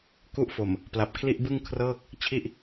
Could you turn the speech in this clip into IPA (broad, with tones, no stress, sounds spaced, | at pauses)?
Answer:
k u˦˥ ʔ f o˨˩ m | p l a˨˩ p̚ kʰ l i˥˩ ʔ b ɯ˥˩ ŋ kʰ r ɤː˥˩ k̚ | t͡ɕʰ i˥˩ ʔ